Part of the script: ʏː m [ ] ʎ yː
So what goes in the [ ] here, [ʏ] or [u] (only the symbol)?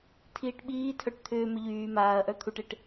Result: ʏ